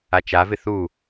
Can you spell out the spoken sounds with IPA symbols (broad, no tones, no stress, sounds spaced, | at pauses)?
a t͡ʃ a v ɪ θ u